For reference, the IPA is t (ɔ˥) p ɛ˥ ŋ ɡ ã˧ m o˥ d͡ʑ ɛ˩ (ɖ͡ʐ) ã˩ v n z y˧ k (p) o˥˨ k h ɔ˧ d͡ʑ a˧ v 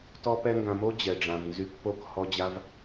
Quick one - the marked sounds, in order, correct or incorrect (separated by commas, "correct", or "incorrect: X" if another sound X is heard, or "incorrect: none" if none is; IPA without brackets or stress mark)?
correct, correct, correct